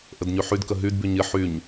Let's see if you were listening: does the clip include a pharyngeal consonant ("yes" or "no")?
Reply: yes